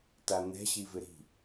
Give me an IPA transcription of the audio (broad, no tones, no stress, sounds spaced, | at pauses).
t a n̪ ɛ̤ ɕ i v ɪ ɾ i̤